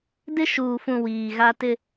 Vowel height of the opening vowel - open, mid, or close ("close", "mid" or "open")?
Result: close